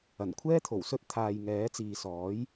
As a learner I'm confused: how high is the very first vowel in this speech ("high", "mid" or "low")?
low